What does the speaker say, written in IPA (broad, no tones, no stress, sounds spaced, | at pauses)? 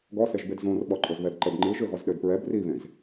ɡ ɔ s e ʒ b e d z õ r ɓ ɔ ǃʼ ɵ z β ɛ d ǃ ə b ŋ͡ǃ ɨ ʒ ø ɣ ɔ z ɗ ø d p ɹ ɛ b r i β ẽ z